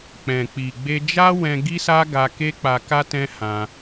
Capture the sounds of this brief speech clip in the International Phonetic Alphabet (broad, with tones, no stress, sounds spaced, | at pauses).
k͡p ɛ̃˨ k͡p i˨ ɡ͡b e˧ d͡ʒ a˦ w ɛ̃˧ ɡ i˦ s a˦ ɡ a˧ k e˦ k͡p a˧ k a˦ t ɛ̃˦ h ã˧